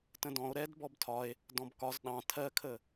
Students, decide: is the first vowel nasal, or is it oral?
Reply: nasal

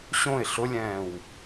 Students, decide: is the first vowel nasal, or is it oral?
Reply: nasal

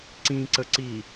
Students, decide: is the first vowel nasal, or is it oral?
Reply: nasal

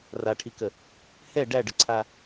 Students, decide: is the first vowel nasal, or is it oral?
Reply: oral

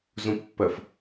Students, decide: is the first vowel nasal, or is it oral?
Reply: nasal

